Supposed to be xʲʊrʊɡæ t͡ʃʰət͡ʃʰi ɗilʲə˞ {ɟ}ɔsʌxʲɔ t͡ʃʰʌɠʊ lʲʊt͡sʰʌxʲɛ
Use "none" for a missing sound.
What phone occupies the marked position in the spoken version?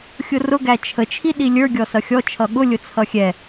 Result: ɡʲ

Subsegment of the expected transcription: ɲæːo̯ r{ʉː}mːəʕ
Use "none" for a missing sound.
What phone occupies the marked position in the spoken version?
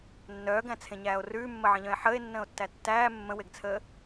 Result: ʉː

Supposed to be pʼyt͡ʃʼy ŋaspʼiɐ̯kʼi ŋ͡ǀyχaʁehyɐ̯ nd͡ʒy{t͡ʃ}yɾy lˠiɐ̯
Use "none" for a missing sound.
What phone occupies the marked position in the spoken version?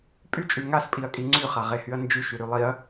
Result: ʃ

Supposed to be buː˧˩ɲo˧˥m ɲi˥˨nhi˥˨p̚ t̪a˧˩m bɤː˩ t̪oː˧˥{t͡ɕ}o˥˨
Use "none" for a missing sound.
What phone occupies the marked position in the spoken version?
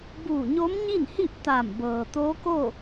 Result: k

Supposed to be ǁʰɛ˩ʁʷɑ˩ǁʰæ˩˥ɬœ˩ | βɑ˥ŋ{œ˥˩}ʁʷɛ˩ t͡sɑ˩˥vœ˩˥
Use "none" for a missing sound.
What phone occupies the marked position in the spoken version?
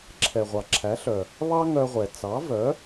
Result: œ˧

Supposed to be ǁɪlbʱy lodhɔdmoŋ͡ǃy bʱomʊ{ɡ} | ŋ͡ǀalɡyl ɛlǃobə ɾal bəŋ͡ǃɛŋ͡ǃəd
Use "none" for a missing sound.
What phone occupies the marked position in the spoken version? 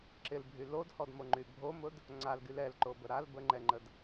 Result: d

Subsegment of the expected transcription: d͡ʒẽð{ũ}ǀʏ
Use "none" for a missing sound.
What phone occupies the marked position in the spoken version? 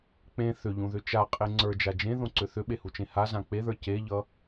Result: õ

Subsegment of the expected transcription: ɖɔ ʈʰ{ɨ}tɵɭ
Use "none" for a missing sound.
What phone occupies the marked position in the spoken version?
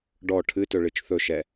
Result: ɨ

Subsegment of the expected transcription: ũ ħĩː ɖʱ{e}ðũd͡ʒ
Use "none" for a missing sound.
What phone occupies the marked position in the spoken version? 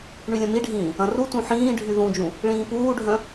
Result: y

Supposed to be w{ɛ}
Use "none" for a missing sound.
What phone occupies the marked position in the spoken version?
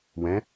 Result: ɛ̃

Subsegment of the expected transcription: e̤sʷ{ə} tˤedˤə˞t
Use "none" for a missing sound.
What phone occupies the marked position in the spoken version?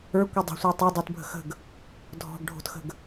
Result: ə˞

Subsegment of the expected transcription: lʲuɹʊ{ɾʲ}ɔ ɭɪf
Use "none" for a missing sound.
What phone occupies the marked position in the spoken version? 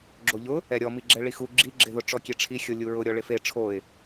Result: ɾʲ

